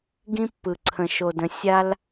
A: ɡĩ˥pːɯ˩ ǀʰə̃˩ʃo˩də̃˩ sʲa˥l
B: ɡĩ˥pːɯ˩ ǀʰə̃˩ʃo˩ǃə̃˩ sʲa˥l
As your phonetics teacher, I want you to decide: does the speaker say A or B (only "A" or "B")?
A